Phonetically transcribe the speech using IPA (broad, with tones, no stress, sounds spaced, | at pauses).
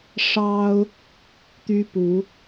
ʂ ɑ˦ ʊ̯ | t̪ y˦ p u˨˦